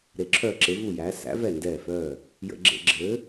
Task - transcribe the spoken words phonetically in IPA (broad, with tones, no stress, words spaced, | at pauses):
ɾe˩˧ǁʰœː˧˩ ǁe˩˧vu˧˩jæː˩˧ sæ̰˨˥ vɛ˧˩ndɛː˧˩fœː˧˩ | jə̰˧˩˧ɡ͡ǁḛ˧˩˧ ɡ͡ǁɘː˨˥